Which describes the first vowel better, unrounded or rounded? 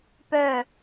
rounded